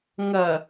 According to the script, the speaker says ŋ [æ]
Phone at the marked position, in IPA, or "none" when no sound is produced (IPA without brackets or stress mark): ɐ